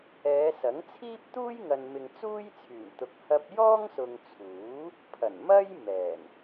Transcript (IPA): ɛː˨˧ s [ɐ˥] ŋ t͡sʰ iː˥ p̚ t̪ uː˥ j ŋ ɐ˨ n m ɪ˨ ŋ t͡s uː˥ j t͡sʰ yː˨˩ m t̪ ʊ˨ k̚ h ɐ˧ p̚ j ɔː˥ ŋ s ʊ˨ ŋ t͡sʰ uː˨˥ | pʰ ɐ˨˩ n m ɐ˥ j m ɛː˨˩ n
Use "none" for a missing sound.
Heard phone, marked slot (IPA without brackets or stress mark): ɐ˨˥